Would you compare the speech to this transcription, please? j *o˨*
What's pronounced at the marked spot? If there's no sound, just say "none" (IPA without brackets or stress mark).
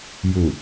u˨